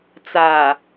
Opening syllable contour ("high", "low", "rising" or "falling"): low